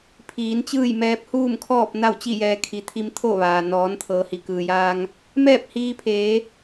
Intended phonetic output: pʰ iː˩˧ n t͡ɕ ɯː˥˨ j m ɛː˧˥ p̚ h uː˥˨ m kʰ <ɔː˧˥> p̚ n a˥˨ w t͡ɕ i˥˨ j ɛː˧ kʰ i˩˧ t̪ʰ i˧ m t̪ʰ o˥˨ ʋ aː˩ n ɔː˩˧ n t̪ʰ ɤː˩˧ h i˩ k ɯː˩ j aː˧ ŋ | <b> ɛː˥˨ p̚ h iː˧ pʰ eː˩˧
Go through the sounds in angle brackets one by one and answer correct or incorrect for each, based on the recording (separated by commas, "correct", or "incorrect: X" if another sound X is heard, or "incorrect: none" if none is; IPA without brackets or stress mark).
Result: incorrect: ɔː˥˨, incorrect: m